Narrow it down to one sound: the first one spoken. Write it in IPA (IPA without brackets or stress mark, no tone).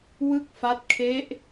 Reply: w